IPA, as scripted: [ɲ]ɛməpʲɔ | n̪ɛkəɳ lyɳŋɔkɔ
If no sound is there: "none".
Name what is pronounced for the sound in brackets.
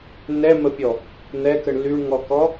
n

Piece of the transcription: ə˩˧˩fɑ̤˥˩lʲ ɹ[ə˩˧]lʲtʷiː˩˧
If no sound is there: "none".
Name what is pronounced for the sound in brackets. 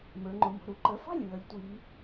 ə˩˧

